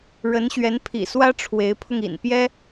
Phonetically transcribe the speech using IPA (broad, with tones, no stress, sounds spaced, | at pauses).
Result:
ɻ ə˧˥ n ɕ ɥ ɛ˧˥ n pʰ ḭ˨˩ s w ä˥ ʈ͡ʂʰ w e˧˥ ɪ̯ pʰ ʊ˧ ŋ ḭ˨˩ n p j ɛ˥